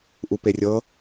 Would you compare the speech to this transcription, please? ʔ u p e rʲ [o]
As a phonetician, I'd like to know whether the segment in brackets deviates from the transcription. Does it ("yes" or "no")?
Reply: yes